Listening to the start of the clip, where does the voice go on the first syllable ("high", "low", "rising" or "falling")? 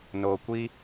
low